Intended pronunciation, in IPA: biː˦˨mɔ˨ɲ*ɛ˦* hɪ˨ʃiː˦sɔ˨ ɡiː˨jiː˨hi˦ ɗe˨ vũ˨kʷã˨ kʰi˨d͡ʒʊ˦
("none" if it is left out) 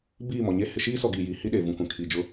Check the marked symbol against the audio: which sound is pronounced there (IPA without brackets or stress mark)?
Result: e˦